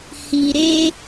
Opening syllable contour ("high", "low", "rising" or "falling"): low